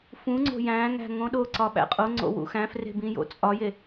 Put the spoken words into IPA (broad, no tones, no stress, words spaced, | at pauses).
fũŋ͡ǀo̤ jæ̃ŋæ̤ ŋõɗoǀɒ ɓæ̰qʼoŋ͡ǀo̰ wṵxæ̃fre̤ bĩjo̰t͡sʼɒje